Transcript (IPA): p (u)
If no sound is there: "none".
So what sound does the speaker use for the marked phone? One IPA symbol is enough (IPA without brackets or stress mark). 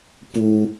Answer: u